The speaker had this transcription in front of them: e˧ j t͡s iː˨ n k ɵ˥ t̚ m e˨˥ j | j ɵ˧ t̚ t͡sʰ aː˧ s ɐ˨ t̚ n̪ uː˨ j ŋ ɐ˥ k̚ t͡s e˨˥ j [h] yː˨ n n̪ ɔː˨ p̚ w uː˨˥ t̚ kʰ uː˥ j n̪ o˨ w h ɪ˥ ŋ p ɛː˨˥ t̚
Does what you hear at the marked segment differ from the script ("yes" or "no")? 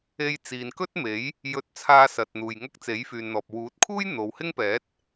yes